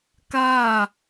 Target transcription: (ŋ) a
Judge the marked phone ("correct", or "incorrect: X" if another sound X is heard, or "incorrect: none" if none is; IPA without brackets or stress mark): incorrect: k